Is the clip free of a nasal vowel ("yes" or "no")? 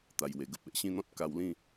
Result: no